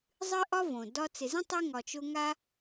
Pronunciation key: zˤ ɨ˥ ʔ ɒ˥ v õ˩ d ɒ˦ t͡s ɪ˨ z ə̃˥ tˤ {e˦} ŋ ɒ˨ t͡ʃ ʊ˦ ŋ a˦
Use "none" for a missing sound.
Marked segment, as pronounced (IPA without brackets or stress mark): e˦